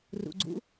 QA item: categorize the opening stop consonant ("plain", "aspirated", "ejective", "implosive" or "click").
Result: click